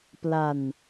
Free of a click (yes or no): yes